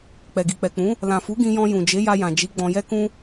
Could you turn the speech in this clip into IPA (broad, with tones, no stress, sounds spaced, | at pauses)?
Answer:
k͡p ɛ˨ ɡ i˨ k͡p ɛ˨ k͡p ũ˨˦ | l ã˨ f u˨˦ ɡ ĩ˧ j ɔ̃˧ j ũ˨ d͡ʒ e˨˦ j a˧ j ã˨ d͡ʒ i˨˦ ɡ͡b ɔ̃˧ j ɛ˦ k ũ˦